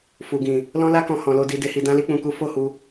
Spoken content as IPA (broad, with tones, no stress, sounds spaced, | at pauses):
f u˨ ɡ ĩ˨ | l ɔ̃˦ l a˦ k ɔ̃˧ h ɔ̃˨ l o˧ d i˧ d e˧ h i˧ d ã˦ l i˦ k͡p ũ˧ k u˦ f o˦˨ h u˧